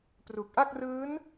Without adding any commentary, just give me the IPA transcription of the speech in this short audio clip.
p r u˨˩ k̚ ʔ a˥˩ k̚ r ɯː˦˥ n

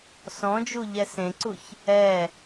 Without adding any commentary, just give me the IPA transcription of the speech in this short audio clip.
s ɔ̃ d͡ʒ u ʎ ɛ s ẽ ǀ u ç | ɛ

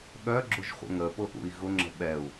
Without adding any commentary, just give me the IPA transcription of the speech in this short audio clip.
ɠ œ ɡ͡ǁ ʊ ʒ χʷ ə̰ ŋ ə p ʊ ʔ ṵ i̯ ɣ ʊ ŋ͡ǁ ə̤ ɓ ɛ u̯

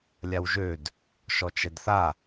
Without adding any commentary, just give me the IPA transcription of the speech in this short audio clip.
lʲ a w ʒ ø d | ʃ ɔ t͡ʃ ɛ d θ a

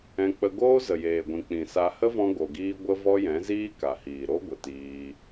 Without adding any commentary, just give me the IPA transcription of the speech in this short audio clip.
ɛ̃˧ k͡p ə˧ ɡ oː˦ z ə˨ j eː˨ ɡʷ ĩ˨ k͡p ĩ˨ s a˧ h ə˦ v ɔ̃˧ ɡ o˨ ɡ iː˧ ɡʷ ə˦ v ɔ˦ j ɛ̃˨˦ z iː˦ k a˨ h iː˨ ɾ o˦ ɡʷ ə˨ t iː˧

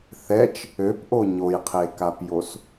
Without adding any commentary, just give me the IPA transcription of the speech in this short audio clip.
θ ɛ t͡ʃ | ø p ʔ o ɲ o j qʰ e k a p j o s

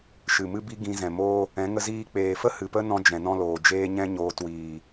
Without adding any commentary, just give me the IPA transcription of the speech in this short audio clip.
ʃ ɨ˨ m ɨ˦ b i˦ ɡ ĩ˧ z ɛ̃˨ m oː˦ | ɛ̃˨˦ ŋ ə˧ z iː˧ k͡p eː˨ f ə˦ h ɨ˨ p ə˦ n ɔ̃˧ d͡ʒ ɛ̃˨ n ɔ̃˦ l oː˨ d͡ʒ eː˦ ɲ ɛ̃˦ ɲ oː˧ t w iː˨

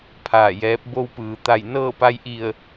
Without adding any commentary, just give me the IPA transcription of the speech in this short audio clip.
pʰ aː˧˩ j ɛː˧˥ p̚ b o˧ w p ɯː˩ t̪ a˧˩ j n ɤː˥˨ p a˧ j ʔ i˧˩ ə̯

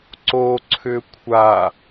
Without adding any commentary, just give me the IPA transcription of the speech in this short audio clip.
ǀ o ǀʰ ʏ kʷʰ a

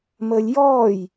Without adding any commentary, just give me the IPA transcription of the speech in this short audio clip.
m əː lʲ j ɔː j

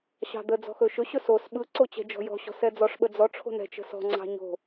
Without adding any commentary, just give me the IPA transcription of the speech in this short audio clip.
ɕ ɑ̤ d̪ ə d͡z ɔ̤ x ɵ ʃ ɵ ɕ ɵ s o s ɓ ɯ ǀ o t͡ɕ ɛ̤ d͡ʒ ɔ̤ j ɔ̤ ɕ ɔ̤ s ɛ d͡z ɔ ʂ ɓ ə d͡z ɔ ʈ͡ʂʰ o̤ n ɛ̤ t͡ʃ ə̤ s ɔ̤ ŋ͡ǀ ɑ̤ ɲ o̤

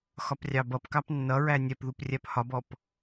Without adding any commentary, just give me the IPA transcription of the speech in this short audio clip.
x ɒ p rʲ ɑ b ʌ p k ɑ p nː ʌ ɹ æ nʲ ɛ p ð u p rʲ æ p h ɒ b ɔ p

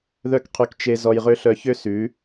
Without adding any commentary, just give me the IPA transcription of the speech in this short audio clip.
ð œ˦ k qʰ y˧ k t͡ʃ e˦ z ɔ˧ j ʁ ø˦ ɬ œ˧ ç ø˦ s ʉ˨˦

